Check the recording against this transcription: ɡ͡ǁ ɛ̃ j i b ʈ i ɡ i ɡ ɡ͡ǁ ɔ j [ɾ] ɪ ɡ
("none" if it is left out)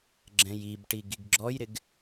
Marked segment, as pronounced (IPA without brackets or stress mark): ɾ